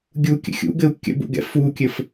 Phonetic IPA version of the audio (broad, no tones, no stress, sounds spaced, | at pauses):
ɡʲ u kʲ ə̰ xʲ ṵ ɡ ɘ u̯ kʲ ə̰ b ṵ ɡ ɛ̰ f u kʲ ɘ f